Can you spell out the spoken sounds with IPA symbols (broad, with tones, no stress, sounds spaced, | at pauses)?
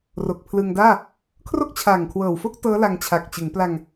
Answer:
r o˨˩ k̚ pʰ l ɯ˧ ŋ d aː˥˩ | kʰ r o˥˩ k̚ t͡ɕʰ aː˨˩ ŋ kʰ w ɤː˨˩ w f o˥˩ k̚ t ɤː˦˥ l a˧ ŋ t͡ɕʰ a˨˩ k̚ t͡ɕ ɯ˩˦ ŋ p l a˧ ŋ